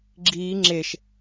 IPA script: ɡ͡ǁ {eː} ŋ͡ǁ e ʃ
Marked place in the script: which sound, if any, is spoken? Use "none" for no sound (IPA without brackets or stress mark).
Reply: iː